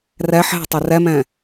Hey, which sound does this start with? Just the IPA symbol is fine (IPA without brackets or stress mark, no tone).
r